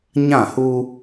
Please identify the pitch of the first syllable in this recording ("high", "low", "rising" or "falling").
falling